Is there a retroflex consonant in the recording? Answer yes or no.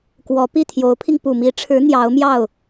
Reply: yes